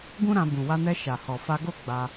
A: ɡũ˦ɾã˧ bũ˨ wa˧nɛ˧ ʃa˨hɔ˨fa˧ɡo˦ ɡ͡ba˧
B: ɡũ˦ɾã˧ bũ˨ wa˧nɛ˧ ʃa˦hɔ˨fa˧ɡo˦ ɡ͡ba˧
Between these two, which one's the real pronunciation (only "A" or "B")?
A